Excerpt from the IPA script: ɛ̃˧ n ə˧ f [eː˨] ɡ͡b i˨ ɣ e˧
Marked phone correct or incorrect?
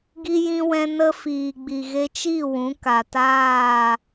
incorrect